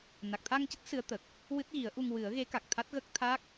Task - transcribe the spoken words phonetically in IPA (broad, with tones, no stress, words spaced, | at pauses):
na˨˩k̚t̪ʰa˧ŋcə˦˥k̚ sɨ˧˥ə̯t̪ə˨˩k̚ | wɨ˦˥t̚ɣi˨˩˦ə̯ʔu˧ŋ wɨ˨˩˦ə̯ɣe˧˥ka˨˩k̚ t̪ʰa˦˥t̚ɣə˦˥k̚ t̪ʰa˦˥k̚